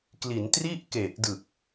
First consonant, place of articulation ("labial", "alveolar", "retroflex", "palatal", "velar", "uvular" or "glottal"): velar